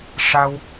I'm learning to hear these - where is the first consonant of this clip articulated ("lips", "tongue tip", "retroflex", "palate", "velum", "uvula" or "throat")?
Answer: retroflex